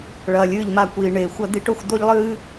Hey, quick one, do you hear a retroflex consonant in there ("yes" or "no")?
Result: yes